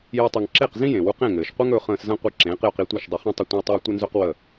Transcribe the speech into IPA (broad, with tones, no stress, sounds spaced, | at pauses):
j e˥ tˤ i˧ ŋ ǁ e˥˩ q z ĩ˥ j ẽ˩ w u˧ q ẽ˥˩ ŋ ɘː˩ ʃ qʷ ɘ˥ ŋ ɵː˩˥ χ ə̃ː˧ s z ə̃˥ qʷ i˧ ǁ ẽː˩˥ q j ɵ˧ q i˧ tʷ e˥˩ ʃ dˤ ɘ˧ χ ĩ˥ tˤ ə˥˩ tʷ ə̃˥ w tˤ ɘː˥ tʷ ə˥ n z ɵ˥ q w ə˥˩